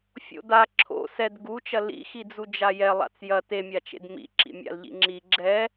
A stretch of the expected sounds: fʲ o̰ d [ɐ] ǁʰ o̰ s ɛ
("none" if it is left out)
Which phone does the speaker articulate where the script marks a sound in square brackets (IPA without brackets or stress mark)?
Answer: a